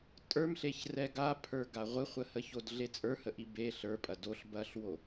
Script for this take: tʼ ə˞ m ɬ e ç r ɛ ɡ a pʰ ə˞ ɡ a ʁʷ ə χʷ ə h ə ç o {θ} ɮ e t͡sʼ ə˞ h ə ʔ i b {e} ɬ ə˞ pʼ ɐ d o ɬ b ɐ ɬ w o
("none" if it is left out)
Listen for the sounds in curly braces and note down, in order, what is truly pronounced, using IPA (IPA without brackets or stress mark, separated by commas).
d, e